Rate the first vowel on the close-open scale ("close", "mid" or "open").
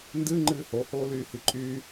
close